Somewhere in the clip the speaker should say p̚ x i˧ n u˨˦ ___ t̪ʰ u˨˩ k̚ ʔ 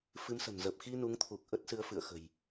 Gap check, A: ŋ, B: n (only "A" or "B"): A